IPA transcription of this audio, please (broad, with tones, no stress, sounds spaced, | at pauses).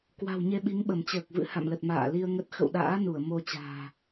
k w a̤˨˩ w ɲ e˧ ɓ i˨˦ ŋ ɓ ə˧˩ m t͡ɕ əː˨˩ k̚ v ɨ̰˧˥ h a̰˧˨ m l ə˨˩ t̚ m a̰ː˧˨ l i˧ ə̯ ŋ ə˦˥ t̚ x ə̰˧˨ w ɗ a̰ː˧˥ n u˧˩ ə̯ m o˧ t͡ɕ a̤ː˨˩